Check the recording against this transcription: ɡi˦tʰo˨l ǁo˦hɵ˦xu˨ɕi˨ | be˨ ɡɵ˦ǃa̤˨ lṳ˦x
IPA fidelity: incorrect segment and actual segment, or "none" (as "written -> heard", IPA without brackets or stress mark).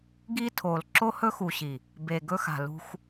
ǃ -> x